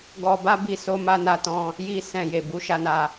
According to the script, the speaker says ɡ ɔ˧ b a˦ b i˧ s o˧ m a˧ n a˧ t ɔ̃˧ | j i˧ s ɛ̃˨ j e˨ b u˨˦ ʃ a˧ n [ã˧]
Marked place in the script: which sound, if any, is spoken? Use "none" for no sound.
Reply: a˧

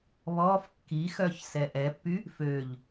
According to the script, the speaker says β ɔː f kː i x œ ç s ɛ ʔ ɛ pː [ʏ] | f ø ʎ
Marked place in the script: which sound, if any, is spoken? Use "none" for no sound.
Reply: y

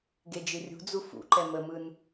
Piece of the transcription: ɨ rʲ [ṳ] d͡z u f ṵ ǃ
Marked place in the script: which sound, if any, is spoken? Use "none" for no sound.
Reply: ṳ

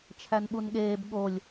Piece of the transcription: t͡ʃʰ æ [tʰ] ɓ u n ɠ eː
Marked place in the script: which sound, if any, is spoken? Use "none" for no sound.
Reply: n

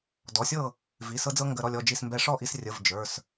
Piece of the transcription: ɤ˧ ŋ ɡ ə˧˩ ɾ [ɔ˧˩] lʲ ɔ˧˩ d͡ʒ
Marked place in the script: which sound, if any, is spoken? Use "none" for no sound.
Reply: ɔ˧˩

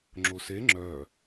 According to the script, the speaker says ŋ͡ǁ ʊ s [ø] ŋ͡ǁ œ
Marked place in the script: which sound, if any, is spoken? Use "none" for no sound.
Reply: e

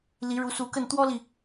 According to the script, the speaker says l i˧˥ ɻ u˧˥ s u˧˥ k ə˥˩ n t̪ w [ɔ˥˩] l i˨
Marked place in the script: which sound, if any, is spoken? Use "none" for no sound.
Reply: ɔ˥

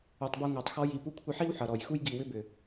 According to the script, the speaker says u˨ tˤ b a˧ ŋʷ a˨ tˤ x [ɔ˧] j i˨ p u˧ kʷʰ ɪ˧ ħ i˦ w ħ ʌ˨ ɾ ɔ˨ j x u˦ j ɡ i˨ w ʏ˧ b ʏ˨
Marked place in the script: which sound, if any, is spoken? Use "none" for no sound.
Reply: ɔ˧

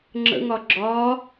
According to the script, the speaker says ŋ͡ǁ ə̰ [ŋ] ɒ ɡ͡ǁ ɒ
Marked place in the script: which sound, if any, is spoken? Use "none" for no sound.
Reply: ŋ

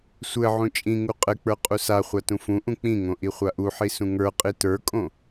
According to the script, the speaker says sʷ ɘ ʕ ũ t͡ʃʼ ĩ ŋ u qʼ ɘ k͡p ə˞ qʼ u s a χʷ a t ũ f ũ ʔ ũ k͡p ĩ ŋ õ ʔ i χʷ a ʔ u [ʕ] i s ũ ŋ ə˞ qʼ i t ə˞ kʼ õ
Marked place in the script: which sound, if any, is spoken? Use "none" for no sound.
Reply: ħ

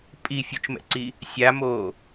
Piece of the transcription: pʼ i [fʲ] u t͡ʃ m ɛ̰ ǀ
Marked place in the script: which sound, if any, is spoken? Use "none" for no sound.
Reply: fʲ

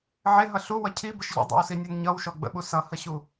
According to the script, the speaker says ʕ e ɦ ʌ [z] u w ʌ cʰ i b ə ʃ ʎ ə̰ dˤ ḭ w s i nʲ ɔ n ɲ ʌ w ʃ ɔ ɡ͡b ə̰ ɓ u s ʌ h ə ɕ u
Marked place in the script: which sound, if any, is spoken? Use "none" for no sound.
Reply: ɬ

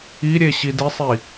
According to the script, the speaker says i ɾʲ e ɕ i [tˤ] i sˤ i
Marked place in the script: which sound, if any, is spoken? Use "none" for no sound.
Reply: d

